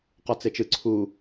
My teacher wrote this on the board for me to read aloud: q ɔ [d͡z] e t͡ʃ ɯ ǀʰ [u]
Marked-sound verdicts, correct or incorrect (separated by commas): incorrect, correct